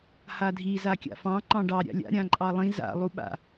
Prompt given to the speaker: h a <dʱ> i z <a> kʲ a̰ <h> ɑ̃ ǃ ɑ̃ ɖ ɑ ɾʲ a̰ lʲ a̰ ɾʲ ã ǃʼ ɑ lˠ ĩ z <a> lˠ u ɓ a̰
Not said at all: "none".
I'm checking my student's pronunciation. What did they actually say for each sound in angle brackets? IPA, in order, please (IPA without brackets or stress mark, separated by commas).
dʱ, a, f, a̰